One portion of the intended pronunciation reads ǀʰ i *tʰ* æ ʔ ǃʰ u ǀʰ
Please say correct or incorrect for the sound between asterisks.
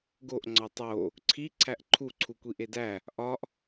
incorrect